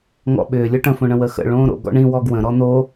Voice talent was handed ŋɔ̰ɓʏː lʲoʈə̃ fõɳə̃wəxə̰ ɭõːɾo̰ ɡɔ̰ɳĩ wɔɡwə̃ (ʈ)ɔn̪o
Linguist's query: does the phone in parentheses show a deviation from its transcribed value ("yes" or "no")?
yes